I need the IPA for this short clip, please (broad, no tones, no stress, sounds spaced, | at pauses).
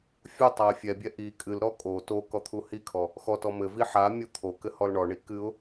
fʲ u tˤ a ɪ̯ fʲ ɛ bʲ ɛ ʔ i kʼ ɨ l ɾ ɔ kʼ o t o k ɔ t̪ʰ u h i kʰ ɔ | x ɔ t ɔ m ɘ v i ħ a mʲ o t̪ʰ o k ɘ h ɔ l ɳ ɔ ɳ i k ɨ ʊ̯